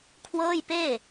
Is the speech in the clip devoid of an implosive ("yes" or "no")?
yes